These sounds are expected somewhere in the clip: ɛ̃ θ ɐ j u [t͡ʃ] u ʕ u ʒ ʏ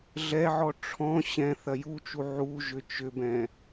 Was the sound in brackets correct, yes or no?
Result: yes